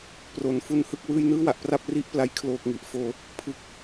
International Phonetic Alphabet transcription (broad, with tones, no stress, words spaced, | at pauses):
pro˩˦n fu˧nhɯ˥˩k̚wɯː˦˥j nɯː˥˩wa˨˩ʔ pra˥˩p̚ri˥˩ʔpla˦˥j kʰloː˨˩k̚ŋi˨˩ʔfoː˧ | pʰɯ˦˥k̚